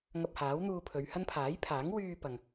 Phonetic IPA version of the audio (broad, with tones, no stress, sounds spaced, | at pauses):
ŋ ɐ˧ p̚ h aː˨˥ w n̪ uː˧ pʰ ɵ˨˧ ɥ h ɐ˥ n pʰ aː˨˥ j pʰ aː˨˥ ŋ w yː˧ p ɐ˨ ŋ